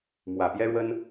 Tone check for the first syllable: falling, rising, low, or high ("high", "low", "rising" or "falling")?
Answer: low